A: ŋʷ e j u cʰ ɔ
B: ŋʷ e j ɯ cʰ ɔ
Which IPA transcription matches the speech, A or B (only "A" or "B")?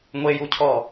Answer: A